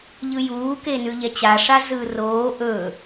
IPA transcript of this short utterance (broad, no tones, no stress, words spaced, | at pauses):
ʎɯjuːke nʉʎɛt͡ɕaʂa zɯːroː ʔɵː